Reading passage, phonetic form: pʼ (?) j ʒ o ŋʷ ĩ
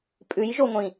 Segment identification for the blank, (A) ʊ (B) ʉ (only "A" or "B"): B